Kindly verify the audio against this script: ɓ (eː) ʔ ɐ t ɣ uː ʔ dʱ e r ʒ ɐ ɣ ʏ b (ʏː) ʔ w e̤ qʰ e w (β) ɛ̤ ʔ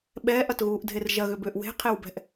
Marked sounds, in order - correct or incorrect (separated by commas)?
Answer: incorrect, correct, incorrect